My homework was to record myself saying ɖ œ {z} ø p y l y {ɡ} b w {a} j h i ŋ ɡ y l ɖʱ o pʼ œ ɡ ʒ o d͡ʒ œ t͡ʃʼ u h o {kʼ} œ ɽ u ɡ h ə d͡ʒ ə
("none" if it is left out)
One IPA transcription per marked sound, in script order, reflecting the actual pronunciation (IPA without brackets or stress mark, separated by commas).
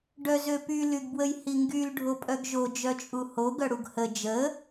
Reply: z, ɡ, ə, ɡ